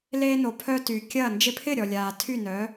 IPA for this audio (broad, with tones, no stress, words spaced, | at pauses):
leː˧no˩ pʰœ˧ty˩ kʲɐ˥˩ nd͡ʒɪ˧pʰɪ˥˩ɾʲɔ˩lʲaː˩ tʰy˥˩nœː˩˥